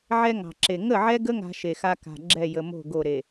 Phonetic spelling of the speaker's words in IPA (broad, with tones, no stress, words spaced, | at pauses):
ʕɛ˦ŋɑ̤˨ǁe˨ ŋə˦˨ʕɛ˦ɡə˦ ŋa̤˦ʃe˨xa˦ ka̤˨ɡ͡ǁɛ˦˨jə˨mo̤˦˨ ɡo˦˨ɾe˨